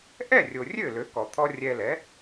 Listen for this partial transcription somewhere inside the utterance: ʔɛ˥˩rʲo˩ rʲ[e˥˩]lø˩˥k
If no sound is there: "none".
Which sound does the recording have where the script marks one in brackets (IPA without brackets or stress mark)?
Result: ø˥˩